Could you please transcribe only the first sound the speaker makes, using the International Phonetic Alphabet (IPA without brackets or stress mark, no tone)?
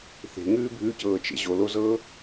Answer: θ